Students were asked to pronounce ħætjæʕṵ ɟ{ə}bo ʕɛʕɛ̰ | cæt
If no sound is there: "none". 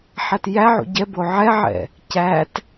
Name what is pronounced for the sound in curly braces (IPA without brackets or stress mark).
ɛ